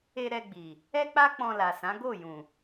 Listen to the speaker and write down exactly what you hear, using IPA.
e˧ ɾ ɛ˧ ɡ͡b i˨ | ɛ˦ k͡p a˦ k͡p ɔ̃˧ l a˨ s ã˨˦ ɡ o˦˨ j ũ˨

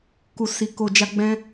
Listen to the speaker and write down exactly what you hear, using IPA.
k u˨ s i˨ k o˨ d͡ʒ a˧ ɡ͡b ɛ̃˧

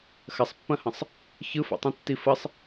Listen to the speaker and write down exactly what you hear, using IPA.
x ɐ sˤ pː ɐ̃ h ə̃ sˤ | ç ɯ f ɔ̰ tˤ ĩ tː i f ə sˤ

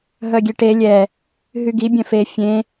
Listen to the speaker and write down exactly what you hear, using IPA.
ɦ œ ɡʲ e ʈ e lʲ ɛ | ɦ y ɡ i bʲ œ̃ f e fʲ ẽ

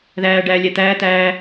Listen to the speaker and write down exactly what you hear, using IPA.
ð æː ɖ æː lʲ ɛ t̪ æː t̪ æː

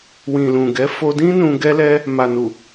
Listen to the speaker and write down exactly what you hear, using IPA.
w ĩ˨ l ũ˨ ɡ ɛ˨˦ f o˧ d ĩ˦ n ũ˧ ɡ ɛ˧ l ɛ˧ | m a˨ n u˨

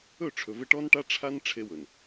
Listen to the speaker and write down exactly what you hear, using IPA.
ɵ˦˨ ʈ͡ʂʰ ɵ˨ v e˦ ʈ ɔ˦ n ʈ a˦ ʈ͡ʂʰ a˦ n ʈ͡ʂʰ e˦ w ɵ˨ n

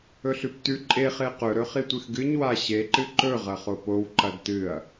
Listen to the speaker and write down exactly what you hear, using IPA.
ɵ ɬ ʉ p t ʉ ǃʼ e χ e q ɵ ɾ ɵ χ i tʷ ɨ x ɡ ɨ ɲ w a ɕ e ǃ ɨ ǃ ɵ ʁ ɐ χ o p o w ǃ ɐ d t ɨ ɐ̯

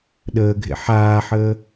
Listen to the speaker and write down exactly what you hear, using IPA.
ɗ əː ɡʱ ḛ ħ aː ħ əː

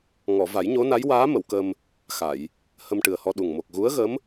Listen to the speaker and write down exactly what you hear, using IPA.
ŋ ɔ˨˩˨ v a˨˩˦ j ɲ o˧˥ n a˧˥ j w aː˧˥ m ə˨˩˨ w k ə˧ m | x a˨˩˨ j | h ə˧ m ʈ ɨ˨˩ ə̯ h ɔ˧ ɗ u˨˩ ŋ m o˨˩ k̚ ɣ u˧˥ ə̯ ɣ ə˧˥ m

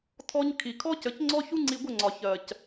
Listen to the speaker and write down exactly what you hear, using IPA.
tʰ ɔ˦ ɲ kʰ i˨ kʰ ɔ˦ c ə˨˦ c ŋ͡ǀ ɔ˦ ç u˦ ŋ͡ǀ i˧ ɡʷ ə˦˨ ŋ͡ǀ ɒ˨ ç ɜ˨ c

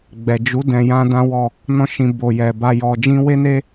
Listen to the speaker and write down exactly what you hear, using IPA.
ɡ͡b ɛ˨ d͡ʒ u˨˦ d ɛ̃˧ j ã˦ d ã˦ w ɔ˦˨ | n ɔ̃˧ ʃ ĩ˨ b o˨ j ɛ˨ b a˧ j ɔ˨ d͡ʒ ĩ˧ w e˦ n e˦

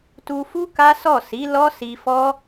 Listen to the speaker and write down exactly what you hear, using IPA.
t u˧ f u˦ k a˦ s ɔ˦˨ s i˨˦ l ɔ˦ s i˧ f ɔ˦

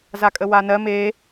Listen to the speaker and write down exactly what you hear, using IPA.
z a kʼ ə w a n ɜ m e

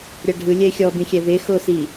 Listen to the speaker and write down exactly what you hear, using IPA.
ɾʲ a ɖʱ ɯ lʲ ɛ ɪ̯ xʲ ɔ b ĩ xʲ ɛ v e x o s i

